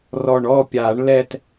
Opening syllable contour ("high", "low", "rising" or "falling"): low